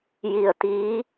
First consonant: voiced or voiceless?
voiced